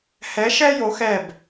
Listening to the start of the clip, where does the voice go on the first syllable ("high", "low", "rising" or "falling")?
rising